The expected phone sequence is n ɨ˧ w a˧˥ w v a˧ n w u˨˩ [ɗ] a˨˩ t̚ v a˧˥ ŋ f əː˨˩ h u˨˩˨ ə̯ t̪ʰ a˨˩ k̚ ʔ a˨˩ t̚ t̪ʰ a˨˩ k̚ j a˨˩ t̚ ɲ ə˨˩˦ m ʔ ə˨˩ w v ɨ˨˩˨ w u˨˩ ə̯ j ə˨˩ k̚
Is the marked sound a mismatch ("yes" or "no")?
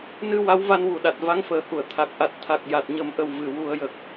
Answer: no